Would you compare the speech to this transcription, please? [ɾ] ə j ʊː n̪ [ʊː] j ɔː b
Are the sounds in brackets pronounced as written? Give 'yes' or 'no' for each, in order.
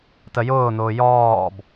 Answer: no, yes

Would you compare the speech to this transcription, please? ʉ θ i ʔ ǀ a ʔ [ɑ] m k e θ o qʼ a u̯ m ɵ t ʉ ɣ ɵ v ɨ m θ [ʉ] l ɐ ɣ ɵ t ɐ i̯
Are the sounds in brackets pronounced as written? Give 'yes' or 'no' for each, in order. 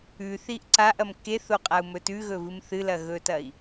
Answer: no, no

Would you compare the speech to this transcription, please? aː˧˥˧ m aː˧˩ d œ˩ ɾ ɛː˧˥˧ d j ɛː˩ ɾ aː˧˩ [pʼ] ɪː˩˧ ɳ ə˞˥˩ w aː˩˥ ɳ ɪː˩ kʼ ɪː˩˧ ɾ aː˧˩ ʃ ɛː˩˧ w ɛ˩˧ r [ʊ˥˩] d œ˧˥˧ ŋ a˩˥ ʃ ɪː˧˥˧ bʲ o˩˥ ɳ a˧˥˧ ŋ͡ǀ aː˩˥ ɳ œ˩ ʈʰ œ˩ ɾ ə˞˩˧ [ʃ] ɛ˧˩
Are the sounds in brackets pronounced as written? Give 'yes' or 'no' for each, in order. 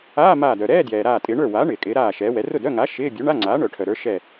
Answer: no, yes, yes

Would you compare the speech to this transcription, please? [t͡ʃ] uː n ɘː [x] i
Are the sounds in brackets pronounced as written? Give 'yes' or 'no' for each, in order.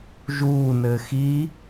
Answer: no, yes

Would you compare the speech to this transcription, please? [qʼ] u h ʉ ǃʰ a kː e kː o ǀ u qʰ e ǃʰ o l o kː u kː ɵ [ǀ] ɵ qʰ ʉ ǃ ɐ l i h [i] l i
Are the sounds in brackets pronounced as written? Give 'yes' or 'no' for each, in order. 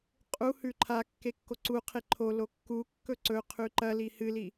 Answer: yes, yes, no

